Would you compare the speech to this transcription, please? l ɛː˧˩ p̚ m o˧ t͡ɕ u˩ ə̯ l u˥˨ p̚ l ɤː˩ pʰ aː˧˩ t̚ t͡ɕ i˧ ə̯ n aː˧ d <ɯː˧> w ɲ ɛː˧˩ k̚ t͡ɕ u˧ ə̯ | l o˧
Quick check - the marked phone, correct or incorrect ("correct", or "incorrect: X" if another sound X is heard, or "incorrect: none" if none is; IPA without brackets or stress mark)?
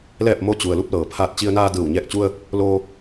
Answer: incorrect: ɯː˧˩